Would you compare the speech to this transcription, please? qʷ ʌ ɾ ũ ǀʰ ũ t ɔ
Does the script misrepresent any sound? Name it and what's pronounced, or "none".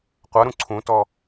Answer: none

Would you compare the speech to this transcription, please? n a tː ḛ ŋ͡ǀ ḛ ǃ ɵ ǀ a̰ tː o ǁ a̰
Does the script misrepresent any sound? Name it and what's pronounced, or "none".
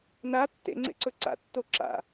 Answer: ǃ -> ǀ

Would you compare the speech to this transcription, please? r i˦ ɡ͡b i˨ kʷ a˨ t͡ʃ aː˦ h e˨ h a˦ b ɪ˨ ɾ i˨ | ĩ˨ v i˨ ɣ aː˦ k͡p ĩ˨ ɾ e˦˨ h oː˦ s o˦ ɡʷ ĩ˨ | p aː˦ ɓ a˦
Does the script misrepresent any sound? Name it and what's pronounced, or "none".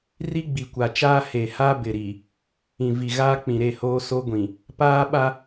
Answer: none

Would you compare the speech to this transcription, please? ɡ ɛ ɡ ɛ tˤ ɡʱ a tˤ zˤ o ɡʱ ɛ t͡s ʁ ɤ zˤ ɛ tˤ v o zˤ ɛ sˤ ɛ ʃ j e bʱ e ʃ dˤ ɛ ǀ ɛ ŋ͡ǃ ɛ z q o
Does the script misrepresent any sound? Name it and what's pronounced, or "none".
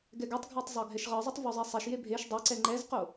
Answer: t͡s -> ʃ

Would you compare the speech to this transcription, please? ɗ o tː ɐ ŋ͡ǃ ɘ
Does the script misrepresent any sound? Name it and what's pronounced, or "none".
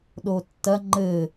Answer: none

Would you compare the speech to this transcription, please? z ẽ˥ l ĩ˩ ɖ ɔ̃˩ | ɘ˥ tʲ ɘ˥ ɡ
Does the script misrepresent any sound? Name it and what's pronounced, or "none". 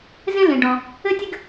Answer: none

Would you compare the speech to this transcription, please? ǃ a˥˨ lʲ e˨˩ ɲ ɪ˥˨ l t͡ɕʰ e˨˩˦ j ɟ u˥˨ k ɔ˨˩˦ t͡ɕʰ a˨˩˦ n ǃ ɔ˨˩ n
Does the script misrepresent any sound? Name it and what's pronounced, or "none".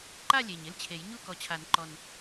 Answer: ɟ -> ɲ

